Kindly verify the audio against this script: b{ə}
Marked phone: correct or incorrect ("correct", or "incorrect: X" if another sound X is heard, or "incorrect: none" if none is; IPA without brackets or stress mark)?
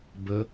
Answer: correct